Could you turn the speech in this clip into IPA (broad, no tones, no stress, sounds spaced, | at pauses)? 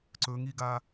ǀ ɵ ŋ i ɡ a